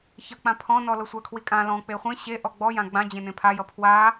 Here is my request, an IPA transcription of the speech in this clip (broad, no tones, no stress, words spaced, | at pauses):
çʌk͡pã pʰɔ̃nɔ lɤsʷakʰwikʼã lɔ̃ k͡peχʷẽ ɕe ʔɔɡ͡bɔjã ɡ͡bãd͡ʑẽnẽ pʰajʌ pʰwa